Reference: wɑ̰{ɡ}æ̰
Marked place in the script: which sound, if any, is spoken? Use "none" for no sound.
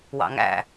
ŋ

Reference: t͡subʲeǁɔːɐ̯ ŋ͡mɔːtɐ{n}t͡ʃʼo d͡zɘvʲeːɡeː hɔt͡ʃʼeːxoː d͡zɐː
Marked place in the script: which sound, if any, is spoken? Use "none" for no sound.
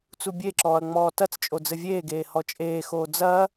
t͡s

